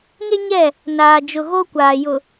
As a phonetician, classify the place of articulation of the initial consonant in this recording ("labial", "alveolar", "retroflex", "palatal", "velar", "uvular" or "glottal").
velar